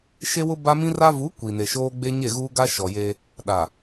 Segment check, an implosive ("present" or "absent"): present